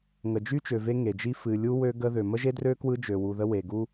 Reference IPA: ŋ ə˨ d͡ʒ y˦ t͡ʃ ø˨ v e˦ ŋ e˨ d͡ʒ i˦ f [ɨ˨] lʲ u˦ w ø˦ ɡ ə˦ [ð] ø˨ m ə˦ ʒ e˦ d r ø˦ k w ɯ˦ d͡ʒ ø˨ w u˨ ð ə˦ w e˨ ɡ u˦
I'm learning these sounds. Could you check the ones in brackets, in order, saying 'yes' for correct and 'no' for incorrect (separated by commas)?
yes, yes